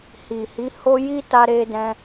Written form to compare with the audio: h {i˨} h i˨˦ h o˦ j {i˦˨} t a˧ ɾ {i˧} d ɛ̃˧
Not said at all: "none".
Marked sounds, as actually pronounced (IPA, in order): i˨, i˦, e˧

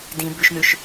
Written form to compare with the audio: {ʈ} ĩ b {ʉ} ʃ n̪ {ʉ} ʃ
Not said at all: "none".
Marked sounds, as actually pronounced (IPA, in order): d, ʉ, ʉ

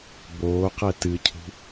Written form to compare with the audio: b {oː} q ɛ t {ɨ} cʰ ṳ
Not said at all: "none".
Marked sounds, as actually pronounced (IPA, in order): oː, ɨ

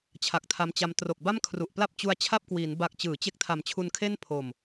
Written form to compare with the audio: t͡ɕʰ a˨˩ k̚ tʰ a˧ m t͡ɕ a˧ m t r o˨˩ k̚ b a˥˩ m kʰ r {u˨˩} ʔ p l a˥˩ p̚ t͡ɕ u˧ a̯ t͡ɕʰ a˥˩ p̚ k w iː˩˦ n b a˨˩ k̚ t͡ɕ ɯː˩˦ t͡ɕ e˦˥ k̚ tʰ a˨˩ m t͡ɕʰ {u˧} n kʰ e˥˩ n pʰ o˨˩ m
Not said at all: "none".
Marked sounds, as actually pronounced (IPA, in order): u˨˩, u˧

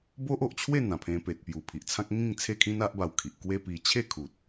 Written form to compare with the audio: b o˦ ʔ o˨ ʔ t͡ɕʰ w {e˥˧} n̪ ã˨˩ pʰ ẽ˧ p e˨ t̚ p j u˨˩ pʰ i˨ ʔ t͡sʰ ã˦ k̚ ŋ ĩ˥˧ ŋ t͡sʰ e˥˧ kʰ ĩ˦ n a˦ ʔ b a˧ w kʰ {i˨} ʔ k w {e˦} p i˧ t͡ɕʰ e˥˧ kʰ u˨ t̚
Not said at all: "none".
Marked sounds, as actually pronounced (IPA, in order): e˥˧, i˨, e˦

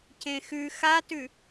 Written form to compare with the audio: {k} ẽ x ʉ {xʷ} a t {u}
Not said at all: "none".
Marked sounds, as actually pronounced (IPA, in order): c, x, ʉ

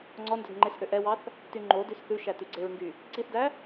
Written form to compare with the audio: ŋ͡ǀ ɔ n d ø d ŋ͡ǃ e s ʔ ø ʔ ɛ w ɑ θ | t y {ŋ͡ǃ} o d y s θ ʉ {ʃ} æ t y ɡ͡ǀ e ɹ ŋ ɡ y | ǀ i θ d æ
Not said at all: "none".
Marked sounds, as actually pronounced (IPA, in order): ŋ͡ǃ, ʃ

